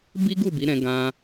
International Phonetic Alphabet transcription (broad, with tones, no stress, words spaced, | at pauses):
bi˦ɡu˦˨bi˨˦ɾɛ̃˧ ɡã˦